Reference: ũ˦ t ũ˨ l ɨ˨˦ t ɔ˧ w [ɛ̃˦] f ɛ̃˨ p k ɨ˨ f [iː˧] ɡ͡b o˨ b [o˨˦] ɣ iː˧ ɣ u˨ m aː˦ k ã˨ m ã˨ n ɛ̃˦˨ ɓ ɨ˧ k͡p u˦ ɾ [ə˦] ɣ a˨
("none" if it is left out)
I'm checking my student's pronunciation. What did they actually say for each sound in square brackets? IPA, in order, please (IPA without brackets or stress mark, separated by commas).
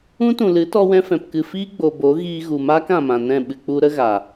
ɛ̃˧, iː˦, o˨˦, ə˦